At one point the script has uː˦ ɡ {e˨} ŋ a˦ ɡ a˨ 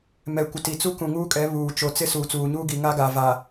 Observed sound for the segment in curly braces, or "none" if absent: i˨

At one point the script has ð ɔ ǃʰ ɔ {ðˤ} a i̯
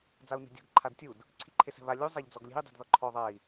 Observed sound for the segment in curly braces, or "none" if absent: ðˤ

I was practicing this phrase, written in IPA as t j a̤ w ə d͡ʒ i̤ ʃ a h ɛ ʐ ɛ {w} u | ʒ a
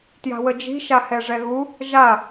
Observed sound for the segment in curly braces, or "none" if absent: ɣ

